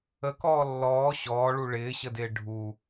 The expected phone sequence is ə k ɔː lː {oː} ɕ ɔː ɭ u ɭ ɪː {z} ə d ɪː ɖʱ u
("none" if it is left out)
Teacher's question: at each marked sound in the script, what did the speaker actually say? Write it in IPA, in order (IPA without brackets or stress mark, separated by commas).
ɔː, ɕ